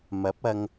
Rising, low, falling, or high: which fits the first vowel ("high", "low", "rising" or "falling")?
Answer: rising